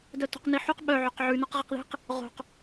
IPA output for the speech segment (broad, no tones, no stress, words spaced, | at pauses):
dœto̤qniħuq ɓœʕoq ʕʉnɔq ʁiqði̤q | ʁo̤q